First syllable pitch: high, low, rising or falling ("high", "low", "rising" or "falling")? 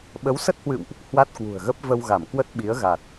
rising